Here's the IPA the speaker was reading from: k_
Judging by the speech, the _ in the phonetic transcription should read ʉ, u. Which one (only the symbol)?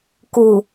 u